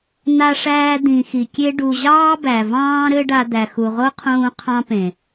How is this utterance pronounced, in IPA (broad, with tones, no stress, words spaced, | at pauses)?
na˧ʂæː˧ d̪ĩ˨ xi˨kʲe˦ ɖu˨ʑɑː˦ bæ˨vɑ̃ː˦ ɾɘ˦ɖa˧d̪æ˨ xu˨ʁo˦qʰũː˧ qʰɑ̃˦pẽ˨